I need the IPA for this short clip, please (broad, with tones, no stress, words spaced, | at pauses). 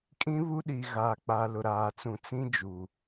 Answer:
kʼĩ˦βu˦ ɗi˨ɣaː˨k͡pa˨ lʊ˨ɾaː˨t͡sũ˨ t͡sĩ˦d͡ʒu˨